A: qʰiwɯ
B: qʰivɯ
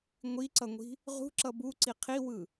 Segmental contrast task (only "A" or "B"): A